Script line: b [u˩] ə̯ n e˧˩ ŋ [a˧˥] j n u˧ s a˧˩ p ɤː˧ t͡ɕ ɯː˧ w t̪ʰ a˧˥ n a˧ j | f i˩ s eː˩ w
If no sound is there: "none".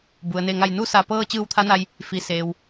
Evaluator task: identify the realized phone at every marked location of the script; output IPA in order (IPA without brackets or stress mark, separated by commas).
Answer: u˩, a˧˩